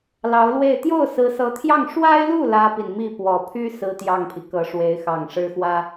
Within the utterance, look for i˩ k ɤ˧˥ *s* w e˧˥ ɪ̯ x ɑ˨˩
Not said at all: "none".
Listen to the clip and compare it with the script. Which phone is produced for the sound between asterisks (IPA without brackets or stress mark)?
ʂ